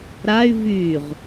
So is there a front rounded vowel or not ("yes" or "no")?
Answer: yes